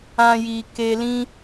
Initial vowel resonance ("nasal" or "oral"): nasal